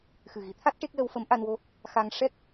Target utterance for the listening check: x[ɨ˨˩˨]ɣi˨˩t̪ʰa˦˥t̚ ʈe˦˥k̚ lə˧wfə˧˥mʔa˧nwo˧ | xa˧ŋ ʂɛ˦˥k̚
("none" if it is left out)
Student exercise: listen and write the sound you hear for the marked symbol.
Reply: ɨ˨˩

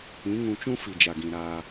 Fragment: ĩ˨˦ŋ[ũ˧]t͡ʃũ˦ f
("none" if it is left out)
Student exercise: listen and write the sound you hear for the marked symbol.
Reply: ũ˧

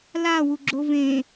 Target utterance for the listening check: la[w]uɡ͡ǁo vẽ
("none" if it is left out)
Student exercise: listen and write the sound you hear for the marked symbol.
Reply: w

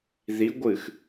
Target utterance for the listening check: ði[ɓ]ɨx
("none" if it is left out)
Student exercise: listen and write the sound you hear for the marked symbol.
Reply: ɡʷ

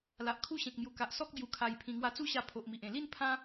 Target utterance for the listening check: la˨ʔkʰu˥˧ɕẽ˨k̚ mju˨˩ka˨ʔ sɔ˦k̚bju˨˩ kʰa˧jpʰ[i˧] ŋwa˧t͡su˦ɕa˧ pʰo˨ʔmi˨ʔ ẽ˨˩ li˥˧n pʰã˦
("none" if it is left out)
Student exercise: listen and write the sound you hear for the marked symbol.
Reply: ĩ˧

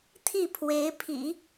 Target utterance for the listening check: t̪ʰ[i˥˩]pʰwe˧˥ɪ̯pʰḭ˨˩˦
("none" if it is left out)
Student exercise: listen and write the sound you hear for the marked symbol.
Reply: i˥˩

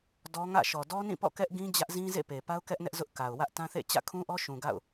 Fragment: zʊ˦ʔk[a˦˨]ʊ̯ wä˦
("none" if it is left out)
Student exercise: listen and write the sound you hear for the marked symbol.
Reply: a˨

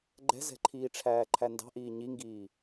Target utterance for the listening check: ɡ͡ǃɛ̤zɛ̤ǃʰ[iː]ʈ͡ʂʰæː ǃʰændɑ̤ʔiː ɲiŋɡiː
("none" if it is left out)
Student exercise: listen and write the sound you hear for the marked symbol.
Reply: iː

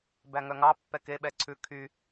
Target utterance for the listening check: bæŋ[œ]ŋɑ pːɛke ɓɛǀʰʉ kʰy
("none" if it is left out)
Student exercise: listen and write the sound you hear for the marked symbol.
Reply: œ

